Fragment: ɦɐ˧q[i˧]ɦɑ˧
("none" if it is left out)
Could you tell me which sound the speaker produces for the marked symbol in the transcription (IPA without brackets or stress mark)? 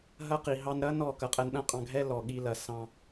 i˨